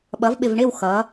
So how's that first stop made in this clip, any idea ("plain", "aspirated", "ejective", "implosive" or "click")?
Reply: implosive